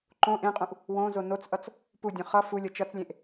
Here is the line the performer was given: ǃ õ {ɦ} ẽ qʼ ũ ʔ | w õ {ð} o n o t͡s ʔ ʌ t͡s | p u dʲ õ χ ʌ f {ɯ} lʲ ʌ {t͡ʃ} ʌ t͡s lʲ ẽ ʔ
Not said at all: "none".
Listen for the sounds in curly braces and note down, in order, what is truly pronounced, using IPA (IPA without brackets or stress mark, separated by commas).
ʔ, z, u, t͡ʃ